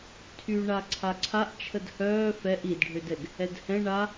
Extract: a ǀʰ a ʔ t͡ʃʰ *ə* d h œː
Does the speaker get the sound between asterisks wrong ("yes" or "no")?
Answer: no